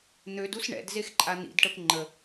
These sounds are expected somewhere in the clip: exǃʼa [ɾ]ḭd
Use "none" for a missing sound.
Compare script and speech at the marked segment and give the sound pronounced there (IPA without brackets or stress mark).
n̪